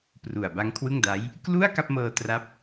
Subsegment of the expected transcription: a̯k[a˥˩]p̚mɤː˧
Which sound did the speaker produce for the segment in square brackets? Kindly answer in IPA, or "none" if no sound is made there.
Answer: a˥˩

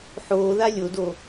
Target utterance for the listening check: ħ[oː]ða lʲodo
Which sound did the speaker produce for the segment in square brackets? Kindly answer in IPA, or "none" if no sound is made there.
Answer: oː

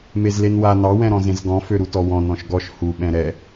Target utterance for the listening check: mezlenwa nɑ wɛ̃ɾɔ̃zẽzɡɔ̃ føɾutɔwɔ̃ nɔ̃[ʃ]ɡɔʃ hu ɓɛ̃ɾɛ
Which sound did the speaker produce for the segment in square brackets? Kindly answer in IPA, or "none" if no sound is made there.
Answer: ʃ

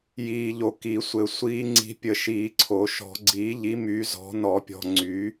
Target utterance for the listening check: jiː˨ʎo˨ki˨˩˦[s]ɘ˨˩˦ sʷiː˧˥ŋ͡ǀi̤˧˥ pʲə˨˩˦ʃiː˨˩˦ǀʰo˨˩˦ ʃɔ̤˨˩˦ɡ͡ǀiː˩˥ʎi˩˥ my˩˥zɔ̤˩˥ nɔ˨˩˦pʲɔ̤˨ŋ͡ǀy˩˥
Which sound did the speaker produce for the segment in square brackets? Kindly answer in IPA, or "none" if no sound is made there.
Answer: sʷ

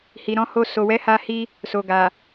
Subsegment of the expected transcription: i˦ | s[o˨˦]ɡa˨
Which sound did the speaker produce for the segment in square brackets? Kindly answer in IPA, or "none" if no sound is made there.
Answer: o˨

